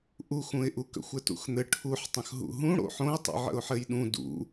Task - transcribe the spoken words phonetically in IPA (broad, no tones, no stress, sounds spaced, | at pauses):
ʔ u x ũ ɪ̯ ʔ u k ə̰ xʷ ɘ t ṵ x n̪ ɘ ʈʰ u ħ tˤ ə̃ x ɦ ṵ ɦ ũ ɽ o̰ ħ õ ɪ̯ tˤ ṵ ʕ ə̰ ʊ̯ ħ ɘ j ɗ ũ d ṵ